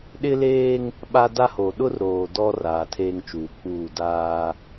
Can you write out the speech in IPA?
ɗɪ˦leː˦ŋ | ɓa˦da˦ho˨ ɗʊ˦rɾoː˨ dɔ˦ raː˨tʰeː˦ŋt͡ʃuː˨k͡puː˦˨ daː˦

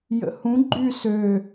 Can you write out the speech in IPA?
jə̰hũ ɡ͡ǃy sø

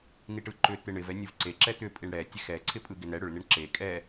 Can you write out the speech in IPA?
niʈɯǃʏ t̪ɪɳɪv ɛnʲɯvǀe ǁɛt̪ʏ pʼiɳɽɛ tʲexɛ ǀʰɪpʼɯɡɪnɛ ɽʏɭ nɪɳǁe kʼɛ

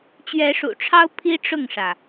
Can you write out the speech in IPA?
t͡ɕɥɛ˨˦ʂṵ˨˩ʈ͡ʂʰɑ˦ʊ̯ pʰi˦ʈ͡ʂʊ˥˨ŋʂä˩

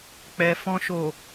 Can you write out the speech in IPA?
k͡pɛ˨ fɔ̃˨ʃo˨

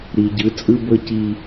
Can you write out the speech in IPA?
ɾi˨ɟɯ˨˦ t͡sʼɯ˦bɤ˦ ci˦

